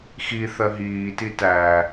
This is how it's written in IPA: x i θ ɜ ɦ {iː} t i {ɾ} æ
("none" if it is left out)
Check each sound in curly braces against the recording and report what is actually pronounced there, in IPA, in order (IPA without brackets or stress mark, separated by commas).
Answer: iː, t